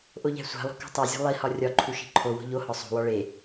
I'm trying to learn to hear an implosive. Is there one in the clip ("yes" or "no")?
no